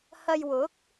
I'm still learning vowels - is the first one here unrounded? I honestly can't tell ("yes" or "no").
yes